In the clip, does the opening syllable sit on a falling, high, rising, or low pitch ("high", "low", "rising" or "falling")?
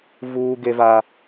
high